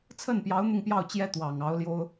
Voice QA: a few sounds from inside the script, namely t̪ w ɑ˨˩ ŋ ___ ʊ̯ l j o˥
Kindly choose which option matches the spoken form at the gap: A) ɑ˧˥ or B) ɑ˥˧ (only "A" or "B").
A